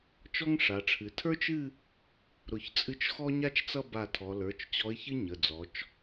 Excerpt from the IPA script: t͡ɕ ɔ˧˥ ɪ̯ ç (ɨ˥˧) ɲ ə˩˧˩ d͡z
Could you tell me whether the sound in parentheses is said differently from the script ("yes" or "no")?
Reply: yes